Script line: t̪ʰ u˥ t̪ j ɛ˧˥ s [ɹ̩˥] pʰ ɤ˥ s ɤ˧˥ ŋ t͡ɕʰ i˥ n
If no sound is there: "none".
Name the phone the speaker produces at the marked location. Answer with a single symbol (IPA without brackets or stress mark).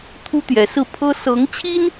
ɹ̩˥˩